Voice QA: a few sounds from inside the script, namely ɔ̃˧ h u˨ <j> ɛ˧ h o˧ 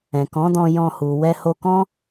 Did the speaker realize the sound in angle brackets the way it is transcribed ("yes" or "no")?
no